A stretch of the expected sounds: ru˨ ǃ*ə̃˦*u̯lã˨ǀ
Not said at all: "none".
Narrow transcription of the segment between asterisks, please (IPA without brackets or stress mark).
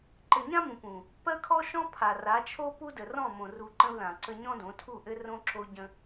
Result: ə̃˦